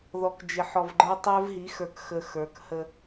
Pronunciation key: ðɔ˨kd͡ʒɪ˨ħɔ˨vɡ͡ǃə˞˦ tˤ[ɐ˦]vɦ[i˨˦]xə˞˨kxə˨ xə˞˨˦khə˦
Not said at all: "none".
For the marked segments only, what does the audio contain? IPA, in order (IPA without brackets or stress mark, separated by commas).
ə˞˦, i˨˦